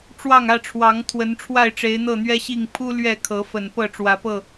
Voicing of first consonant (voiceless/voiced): voiceless